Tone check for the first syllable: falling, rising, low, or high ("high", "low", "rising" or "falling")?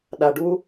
low